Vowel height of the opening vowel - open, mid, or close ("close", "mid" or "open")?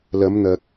open